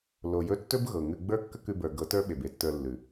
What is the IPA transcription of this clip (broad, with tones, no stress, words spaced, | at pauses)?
lo˨jɵ˦˨tːɵ˦b ɣɤ˨ŋʉ˧ ɡ͡bə˞˦kːə˦kʉ˧bə˞˨ ɡɤ˨˦tə˞˦ɓe˨b e˧tːə˞˧lːʉ˨